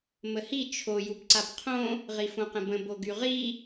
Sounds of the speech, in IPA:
məhi t͡ʃʰo jubǀabqʰõ | ʁifõqə̃bə̃ boɡyʁi

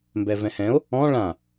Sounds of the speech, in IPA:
mbɛvɛ̃hɛ̃o̯ | ɔ̃ ɭã

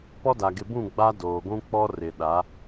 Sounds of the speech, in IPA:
pɔ˦da˨ ɡɪ˨bũ˦˨ ɡ͡ba˦doː˨ɡʷũ˦ k͡pɔ˦rɪ˨ɗa˨˦

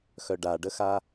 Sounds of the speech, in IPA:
xœɖaɖəxa

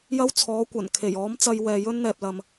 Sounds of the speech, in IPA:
jɐ˥wt͡sʰɔː˨˥kʷɐ˨˩n kʰe˨˩jɔː˨˥mt͡sɐ˧jwɛː˨ jɵ˥nn̪ɛː˨p̚lɐ˨m

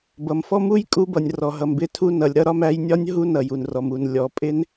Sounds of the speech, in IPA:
bʌ˩mfɔ˦˥mu˦˥j kʼu˦˥bʌ˩nʲ rɔ˩ɦʌ˩mbɪ˦˥tʰu˦˥ nʌ˩lʲɾʌ˦˥ɾɒ˦˥mæ˦˥j nʲɒ˦˥nʲ ɦu˦˥nʌ˩j u˩nrɔ˩mu˩n lʲɔ˩pʼɪ˦˥n

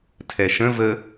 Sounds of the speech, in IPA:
tʰɛʃə̃ və

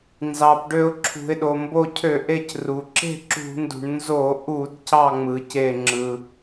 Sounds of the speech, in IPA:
nzɑ˩pɖø˧˩ʊ̯ǁʰṳ˩ɪ̯ ɗo˩mbo˧˩cʰø˧˩˧ʔe˧˩c ru˩ ǁe̤˥˨ǁṳ˧˩˧ndṳ˩ɳ nzo˧˩˧ʔu˧˩˧d cɑ˥˨ŋ͡mɯ˩ce˧˩ ŋ͡ǁɯ˩

